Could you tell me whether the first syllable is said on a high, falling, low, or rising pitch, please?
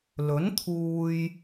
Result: rising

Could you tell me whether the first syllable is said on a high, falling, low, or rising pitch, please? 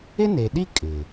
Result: high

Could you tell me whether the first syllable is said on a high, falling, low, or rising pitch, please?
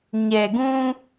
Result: low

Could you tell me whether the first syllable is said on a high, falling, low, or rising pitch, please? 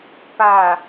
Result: low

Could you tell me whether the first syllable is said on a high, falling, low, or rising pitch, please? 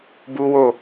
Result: high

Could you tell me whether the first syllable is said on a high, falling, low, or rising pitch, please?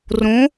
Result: rising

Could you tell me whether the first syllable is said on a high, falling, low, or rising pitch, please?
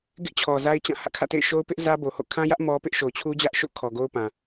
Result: high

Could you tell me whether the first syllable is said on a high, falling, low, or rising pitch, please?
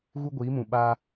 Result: high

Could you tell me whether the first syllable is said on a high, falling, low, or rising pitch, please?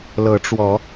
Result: rising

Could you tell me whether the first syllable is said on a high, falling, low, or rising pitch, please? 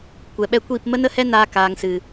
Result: low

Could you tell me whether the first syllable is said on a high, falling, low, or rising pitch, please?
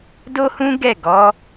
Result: high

